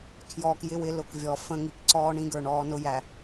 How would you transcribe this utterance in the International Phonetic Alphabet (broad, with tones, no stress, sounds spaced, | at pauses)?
kʰ j ɔː˨ k j ɪ˦ w ɪ˨˦ l ʊ˨ k vʲ ɔ˨ f ə̃˦ ŋ i˨ k ǀ ɔː˦ ɳ ĩ˦ ɡ ə˞˨ ɳ ɔː˦ n ʊ˦ j æ˨